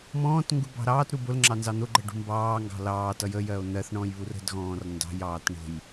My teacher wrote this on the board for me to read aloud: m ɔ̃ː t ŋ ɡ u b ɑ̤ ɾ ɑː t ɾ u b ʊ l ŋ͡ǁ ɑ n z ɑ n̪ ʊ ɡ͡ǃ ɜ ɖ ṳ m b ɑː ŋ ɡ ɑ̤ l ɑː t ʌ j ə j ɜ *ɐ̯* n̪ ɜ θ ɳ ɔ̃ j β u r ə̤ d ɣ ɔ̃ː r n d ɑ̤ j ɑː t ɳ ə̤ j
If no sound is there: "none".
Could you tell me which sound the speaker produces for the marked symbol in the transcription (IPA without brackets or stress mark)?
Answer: o̯